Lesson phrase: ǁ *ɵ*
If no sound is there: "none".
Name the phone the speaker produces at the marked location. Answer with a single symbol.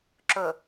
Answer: ɵ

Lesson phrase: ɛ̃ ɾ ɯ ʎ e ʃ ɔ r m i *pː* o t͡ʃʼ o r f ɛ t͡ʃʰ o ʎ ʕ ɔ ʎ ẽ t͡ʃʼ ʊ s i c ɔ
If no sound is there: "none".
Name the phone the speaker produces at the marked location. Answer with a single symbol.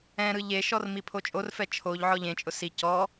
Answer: pʰ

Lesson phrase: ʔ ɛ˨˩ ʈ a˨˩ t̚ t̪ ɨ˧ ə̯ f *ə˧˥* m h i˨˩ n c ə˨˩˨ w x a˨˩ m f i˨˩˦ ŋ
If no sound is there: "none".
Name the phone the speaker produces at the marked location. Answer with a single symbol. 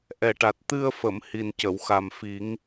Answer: ə˨˩˨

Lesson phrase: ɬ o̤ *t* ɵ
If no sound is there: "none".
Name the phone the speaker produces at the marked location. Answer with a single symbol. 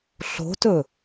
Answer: t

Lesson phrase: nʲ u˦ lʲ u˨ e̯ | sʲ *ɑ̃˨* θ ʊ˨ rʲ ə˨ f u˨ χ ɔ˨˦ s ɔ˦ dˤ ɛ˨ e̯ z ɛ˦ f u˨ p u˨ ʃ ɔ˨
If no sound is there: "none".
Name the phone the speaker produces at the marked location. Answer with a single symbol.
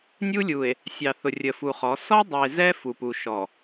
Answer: ɑ˨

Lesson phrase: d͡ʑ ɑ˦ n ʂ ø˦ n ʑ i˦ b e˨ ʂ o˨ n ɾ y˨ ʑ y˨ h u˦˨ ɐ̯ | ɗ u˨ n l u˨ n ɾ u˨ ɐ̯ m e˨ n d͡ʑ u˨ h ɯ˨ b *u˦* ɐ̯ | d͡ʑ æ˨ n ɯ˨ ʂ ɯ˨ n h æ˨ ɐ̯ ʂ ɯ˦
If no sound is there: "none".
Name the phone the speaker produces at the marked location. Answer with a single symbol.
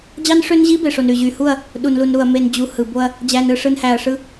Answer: o˦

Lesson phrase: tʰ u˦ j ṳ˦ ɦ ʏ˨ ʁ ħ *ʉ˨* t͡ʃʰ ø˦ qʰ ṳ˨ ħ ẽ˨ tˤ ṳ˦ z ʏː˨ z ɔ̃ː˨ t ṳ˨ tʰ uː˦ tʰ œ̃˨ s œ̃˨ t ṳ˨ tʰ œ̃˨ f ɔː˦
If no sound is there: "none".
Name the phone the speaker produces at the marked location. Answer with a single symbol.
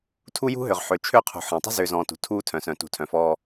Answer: ø˨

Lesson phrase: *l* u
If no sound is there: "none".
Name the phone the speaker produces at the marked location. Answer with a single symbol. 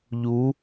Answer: ʎ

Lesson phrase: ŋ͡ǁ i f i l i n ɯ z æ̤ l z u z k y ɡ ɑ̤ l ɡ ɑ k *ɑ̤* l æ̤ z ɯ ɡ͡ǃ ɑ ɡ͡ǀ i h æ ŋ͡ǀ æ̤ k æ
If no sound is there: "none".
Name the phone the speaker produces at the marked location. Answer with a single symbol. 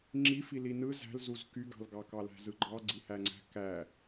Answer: ɑ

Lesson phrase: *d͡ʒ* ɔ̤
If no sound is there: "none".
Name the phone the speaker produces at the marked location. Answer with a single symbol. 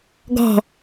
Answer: ɡ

